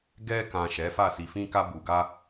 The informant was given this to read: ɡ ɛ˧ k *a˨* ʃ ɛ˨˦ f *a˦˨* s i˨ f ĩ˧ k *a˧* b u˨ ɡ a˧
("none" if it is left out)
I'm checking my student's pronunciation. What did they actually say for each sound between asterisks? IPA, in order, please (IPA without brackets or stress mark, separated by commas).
ã˨, a˦˨, a˧